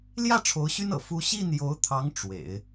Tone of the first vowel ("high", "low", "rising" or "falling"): falling